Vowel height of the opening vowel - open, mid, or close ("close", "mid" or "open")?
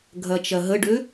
open